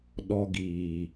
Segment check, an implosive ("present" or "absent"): present